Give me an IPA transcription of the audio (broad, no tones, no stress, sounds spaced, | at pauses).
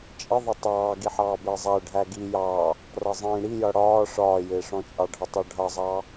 t͡ʃʼ ɪ ðˤ ʌ tˤ ɑː ɡ i ħ ɑː b ɪː zˤ æ ɖʱ æ ɡ i j ɑ | r ʌ zˤ ĩː ɽ i j ʌ ɽ ɒː ʂ ɒː j ɪː ʂ ɔ̃ t͡ʃʼ ɑ ɖʱ ʌ tˤ ɑ ɖʱ ʌ zˤ ɑ